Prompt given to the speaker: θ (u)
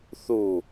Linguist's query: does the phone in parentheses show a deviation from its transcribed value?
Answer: no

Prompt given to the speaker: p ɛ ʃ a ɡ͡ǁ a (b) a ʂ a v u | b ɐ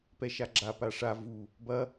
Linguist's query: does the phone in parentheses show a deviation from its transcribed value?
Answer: yes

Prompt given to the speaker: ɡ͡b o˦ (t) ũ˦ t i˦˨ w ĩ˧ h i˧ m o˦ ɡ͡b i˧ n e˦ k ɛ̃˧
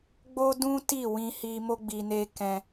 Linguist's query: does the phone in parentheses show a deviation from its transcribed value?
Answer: yes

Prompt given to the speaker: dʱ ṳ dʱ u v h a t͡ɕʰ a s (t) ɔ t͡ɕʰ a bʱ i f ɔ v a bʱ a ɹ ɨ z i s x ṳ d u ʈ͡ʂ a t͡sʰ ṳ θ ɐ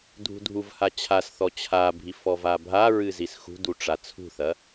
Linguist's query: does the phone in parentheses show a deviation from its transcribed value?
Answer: yes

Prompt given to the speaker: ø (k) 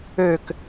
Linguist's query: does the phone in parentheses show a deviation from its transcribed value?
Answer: no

